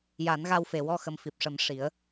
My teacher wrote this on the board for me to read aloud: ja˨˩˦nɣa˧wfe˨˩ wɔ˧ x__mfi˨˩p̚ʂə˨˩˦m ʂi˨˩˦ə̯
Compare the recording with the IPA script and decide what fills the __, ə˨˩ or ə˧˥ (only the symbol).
ə˨˩